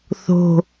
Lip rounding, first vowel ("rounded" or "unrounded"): rounded